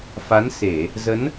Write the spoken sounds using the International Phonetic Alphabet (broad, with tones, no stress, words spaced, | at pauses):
fa˨˦n se˧˩˨ | zə˨˦n